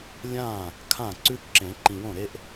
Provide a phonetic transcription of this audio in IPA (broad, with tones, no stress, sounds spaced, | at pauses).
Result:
lʲ ã˥˩ | kʰ ã˥˩ ǀ ʉ˥ ǁ ẽ˨˩˦ ǃ ĩ˨ w õ˥˩ ɾ e˥ ʔ